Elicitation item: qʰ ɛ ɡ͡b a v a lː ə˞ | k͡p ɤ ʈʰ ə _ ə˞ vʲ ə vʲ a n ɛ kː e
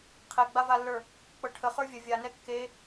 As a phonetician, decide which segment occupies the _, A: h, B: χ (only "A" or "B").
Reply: B